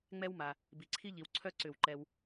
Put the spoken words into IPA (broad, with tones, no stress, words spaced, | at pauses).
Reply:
ŋ͡mɛ˥wma˨ | bi˨ǀʰi˥ʎi˨wǀʰœ˥˧ ǀʏ˨˩˦w ǃɛ˨w